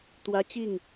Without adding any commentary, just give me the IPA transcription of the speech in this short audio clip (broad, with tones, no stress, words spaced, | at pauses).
t̪wä˦ t͡ɕi˥˨ŋ